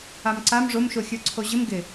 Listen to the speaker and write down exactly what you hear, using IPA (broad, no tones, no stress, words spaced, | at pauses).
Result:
amǀam ʐomʃoxʲə˞ ǀʰoʑɪm ɡɪ